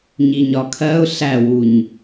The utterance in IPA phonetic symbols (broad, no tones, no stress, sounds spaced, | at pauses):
ɲ i ɲ ɒ kʰ ɜ ʊ̯ ɬ æ w u ɲ